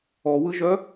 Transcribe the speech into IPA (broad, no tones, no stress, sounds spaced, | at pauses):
ɔ w ɯ ʒ œ